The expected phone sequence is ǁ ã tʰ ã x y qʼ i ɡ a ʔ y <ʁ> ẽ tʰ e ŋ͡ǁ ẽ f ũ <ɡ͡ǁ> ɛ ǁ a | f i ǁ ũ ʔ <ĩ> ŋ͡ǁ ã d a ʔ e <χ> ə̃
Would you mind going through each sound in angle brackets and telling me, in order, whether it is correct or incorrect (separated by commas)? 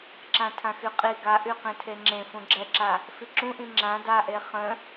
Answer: incorrect, correct, correct, correct